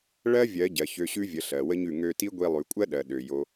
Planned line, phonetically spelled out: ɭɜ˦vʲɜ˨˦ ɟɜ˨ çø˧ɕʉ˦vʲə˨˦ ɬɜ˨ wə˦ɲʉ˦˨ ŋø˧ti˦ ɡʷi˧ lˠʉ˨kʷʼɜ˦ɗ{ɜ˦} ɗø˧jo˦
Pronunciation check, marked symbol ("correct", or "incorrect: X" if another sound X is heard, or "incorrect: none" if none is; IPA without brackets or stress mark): incorrect: ɜ˨